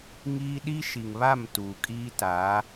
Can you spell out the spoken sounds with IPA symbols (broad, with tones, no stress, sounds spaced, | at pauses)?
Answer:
ŋ iː˦ ɗ i˦ ʃ i˨ ŋ β a˦˨ m t uː˨ kʼ iː˦ t a˨˦